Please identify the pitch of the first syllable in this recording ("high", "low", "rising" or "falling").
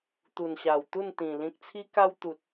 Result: low